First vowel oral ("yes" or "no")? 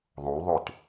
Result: no